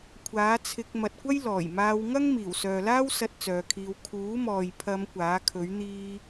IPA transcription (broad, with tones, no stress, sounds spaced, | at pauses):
kʷʰ aː˨˥ t͡sʰ ɪ˧ k̚ m ɐ˨ t̚ kʷ ɐ˥ j l ɔː˨˩ j m aː˧ w ŋ ɐ˥ ŋ m iː˨˩ w s œː˨ l aː˥ w s ɐ˧ t̚ t͡s œː˨˧ kʰ iː˧ w kʰ uː˨˥ m ɔː˨ j pʰ ɐ˨˧ m kʷ aː˨˥ kʰ ɵ˨˥ ɥ n̪ iː˥